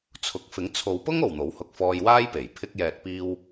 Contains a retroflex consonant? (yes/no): no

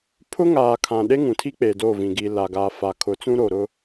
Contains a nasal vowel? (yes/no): yes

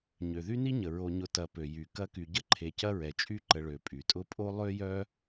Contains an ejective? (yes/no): yes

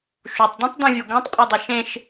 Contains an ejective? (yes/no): yes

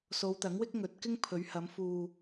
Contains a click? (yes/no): no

